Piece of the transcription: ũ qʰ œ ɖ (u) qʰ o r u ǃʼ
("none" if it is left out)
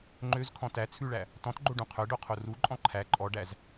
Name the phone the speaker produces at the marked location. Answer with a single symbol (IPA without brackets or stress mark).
o